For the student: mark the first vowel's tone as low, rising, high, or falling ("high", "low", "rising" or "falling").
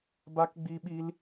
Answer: high